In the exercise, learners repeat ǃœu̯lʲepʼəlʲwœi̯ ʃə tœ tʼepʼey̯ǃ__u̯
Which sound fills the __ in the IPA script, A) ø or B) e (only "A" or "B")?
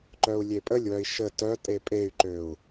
A